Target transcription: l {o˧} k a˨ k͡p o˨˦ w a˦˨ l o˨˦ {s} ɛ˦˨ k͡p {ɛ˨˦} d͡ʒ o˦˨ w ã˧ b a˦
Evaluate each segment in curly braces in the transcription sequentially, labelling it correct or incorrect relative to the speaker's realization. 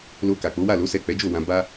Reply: correct, correct, correct

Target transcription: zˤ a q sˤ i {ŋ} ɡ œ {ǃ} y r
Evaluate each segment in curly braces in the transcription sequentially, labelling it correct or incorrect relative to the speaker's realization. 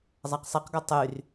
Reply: incorrect: q, incorrect: tˤ

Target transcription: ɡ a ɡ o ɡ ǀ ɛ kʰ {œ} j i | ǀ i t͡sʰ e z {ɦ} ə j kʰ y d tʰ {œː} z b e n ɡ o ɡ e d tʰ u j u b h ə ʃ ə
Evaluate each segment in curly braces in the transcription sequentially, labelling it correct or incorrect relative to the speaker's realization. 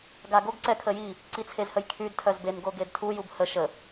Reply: incorrect: ə, incorrect: h, incorrect: œ

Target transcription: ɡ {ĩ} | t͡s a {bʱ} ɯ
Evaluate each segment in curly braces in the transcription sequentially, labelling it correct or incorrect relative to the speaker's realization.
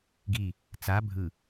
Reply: incorrect: i, correct

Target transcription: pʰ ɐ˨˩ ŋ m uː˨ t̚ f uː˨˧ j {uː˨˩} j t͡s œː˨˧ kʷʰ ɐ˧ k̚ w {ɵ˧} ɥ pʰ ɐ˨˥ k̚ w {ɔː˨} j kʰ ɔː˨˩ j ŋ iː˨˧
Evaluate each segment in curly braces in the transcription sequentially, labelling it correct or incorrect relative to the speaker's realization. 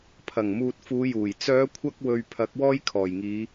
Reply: correct, correct, incorrect: ɔː˥

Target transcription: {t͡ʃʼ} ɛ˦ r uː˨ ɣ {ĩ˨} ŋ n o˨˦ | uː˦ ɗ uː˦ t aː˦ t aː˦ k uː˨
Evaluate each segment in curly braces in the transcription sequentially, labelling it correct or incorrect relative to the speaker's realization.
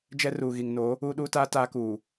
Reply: incorrect: d͡ʒ, incorrect: i˨

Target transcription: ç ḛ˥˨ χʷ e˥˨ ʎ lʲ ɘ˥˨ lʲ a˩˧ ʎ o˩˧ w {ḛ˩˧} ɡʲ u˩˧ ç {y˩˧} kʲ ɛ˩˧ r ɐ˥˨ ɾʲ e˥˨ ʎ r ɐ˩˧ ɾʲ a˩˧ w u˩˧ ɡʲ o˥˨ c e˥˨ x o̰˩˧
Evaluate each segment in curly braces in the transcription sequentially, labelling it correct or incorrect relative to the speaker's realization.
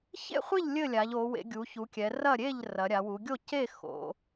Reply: correct, incorrect: u˩˧

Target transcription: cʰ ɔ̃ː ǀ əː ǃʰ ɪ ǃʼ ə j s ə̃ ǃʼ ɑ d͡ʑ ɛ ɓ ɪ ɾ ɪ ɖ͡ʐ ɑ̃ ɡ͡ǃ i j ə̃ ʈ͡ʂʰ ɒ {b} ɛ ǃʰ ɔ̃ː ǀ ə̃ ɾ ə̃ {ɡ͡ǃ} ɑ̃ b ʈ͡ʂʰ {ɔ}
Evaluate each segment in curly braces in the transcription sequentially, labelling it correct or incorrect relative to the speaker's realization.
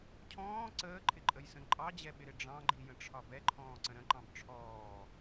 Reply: correct, incorrect: ǃ, incorrect: ɔː

